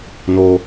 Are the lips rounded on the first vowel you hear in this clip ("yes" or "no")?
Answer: yes